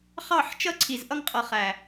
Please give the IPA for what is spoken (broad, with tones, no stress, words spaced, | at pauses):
χɑ˦˨ħ t͡ʃʌ˦ǀʰi˨zʔʌ˦ŋqʼʌ˨ χæ˨